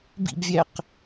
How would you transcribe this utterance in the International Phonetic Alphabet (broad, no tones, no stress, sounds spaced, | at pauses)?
b ḭ b vʲ æ q